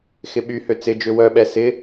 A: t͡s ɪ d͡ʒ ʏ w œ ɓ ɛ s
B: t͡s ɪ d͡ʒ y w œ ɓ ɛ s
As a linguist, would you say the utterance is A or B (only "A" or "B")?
A